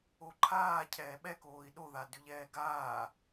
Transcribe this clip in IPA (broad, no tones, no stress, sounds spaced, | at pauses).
o ǃʰ aː cʰ ɛː ɓ ɛ k oː i̯ ɗ o ð a d ʉ ʎ ɛː ɡ aː